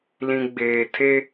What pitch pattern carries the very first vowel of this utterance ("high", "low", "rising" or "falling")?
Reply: low